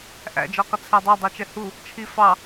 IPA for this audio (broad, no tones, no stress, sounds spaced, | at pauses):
ʔ æ̰ d͡ʒ ɔ q ə t͡sʰ æ dˤ æ dˤ ə˞ t͡ʃ ɛ h u | t͡ʃʰ i f ɑ